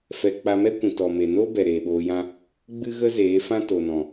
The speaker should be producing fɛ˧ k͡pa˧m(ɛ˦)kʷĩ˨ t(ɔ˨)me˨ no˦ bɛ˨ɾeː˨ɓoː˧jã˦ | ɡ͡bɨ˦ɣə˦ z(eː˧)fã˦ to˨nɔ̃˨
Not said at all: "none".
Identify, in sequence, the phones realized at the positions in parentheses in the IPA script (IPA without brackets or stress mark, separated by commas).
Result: ɛ˦, ɔ˨, eː˨˦